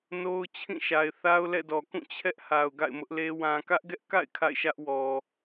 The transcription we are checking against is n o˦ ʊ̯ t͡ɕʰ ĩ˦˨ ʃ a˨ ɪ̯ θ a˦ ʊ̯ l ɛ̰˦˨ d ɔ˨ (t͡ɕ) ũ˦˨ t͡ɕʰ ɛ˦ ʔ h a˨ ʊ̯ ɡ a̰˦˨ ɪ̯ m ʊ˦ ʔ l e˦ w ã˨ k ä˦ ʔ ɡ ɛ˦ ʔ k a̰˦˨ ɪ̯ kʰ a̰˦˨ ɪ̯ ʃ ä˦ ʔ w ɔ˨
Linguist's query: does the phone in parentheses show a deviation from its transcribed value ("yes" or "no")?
yes